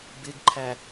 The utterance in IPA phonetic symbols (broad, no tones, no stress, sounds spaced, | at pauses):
b ɪ ɡ ǃʰ æ